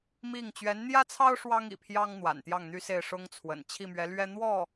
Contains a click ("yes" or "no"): no